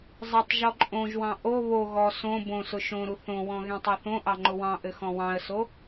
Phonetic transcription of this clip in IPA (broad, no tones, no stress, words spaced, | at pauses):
zˤɘtˤ ʒɔǃʼõʒwɑ̃ ʔo βo ɣɔ sõ bõsʊ ʃõɾu θõwɔ̃ ɣẽtˤoθõʔɑ ŋ͡ǃʊwɑ̃ʔɘ xɔ̃wɑ̃ə̯so